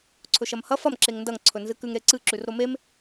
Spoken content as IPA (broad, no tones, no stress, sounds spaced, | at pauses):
ǀʰ ɵ ʃ ɐ m h ɐ f ɐ m ǁ e ŋ n d ɐ ŋ ǀʰ ɵ n z ɨ k ʉ ŋ ɾ e ǀ ɨ ǁ ʉ r ɾ o m e m